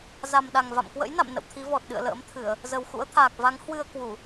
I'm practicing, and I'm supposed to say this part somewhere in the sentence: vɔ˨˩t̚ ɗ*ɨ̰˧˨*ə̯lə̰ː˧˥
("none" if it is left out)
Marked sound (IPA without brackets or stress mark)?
ɨ̰˧˨